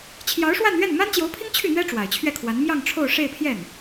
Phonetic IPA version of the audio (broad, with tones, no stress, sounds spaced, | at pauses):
t͡ɕʰ j ɑ˧˥ ʊ̯ ʂ w a˥˧ n ɥ ɛ˥˩ n m a˥ n t͡ɕ j o˧˥ ʊ̯ pʰ i˥ ŋ t͡ɕʰ y˥˩ n̪ ɥ ɛ˥ ʈ͡ʂ w a˨˩ ɪ̯ t͡ɕʰ ɥ ɛ˥˩ kʰ w a˧˥ n m j ɑ˥˧ ŋ ʈ͡ʂʰ o˥˧ ʊ̯ ʂ e˥˧ ɪ̯ pʰ j ɛ˥˩ n